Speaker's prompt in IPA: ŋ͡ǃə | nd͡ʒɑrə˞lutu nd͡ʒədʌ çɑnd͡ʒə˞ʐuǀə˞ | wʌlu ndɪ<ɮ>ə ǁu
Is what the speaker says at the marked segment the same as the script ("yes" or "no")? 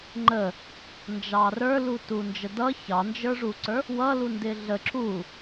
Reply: yes